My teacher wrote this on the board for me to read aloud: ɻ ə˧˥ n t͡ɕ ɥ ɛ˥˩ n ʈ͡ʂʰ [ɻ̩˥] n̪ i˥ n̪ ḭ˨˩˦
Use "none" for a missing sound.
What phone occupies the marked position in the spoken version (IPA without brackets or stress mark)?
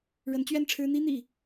ɻ̩˥